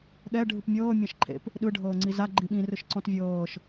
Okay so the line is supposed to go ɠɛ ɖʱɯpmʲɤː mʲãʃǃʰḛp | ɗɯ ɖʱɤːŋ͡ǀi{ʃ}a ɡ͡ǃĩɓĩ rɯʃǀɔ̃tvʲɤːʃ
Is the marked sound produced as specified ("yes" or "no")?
no